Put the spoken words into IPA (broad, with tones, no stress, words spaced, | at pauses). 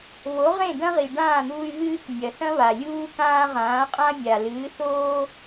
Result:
βo˩˥ʁẽ˥˩dɐ̃˥ ʁi˩ɖãː˥˩n̪uː˧y̯ ɣɨː˥k nʲɐ˩θɐ̃˥βa˩ lʲuː˥kãː˥ ʁãː˩˥qʼã˥mʲa˩ lɨː˩˥θoː˥